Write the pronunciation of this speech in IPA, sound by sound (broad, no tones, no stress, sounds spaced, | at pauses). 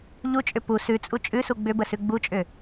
ʎ u t͡ʃʼ ʏ p u s ʉ t͡sʼ u t͡ʃʼ ʉ s u ɡ͡b ʏ b ə s ʉ ɡ͡b u t͡ʃʼ ʏ